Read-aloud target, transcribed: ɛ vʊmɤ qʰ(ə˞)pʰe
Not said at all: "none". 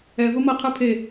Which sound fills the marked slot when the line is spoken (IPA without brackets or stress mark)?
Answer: ə˞